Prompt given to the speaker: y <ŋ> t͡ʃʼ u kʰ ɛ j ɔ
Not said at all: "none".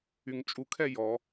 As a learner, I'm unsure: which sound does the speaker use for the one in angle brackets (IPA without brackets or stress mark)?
ŋ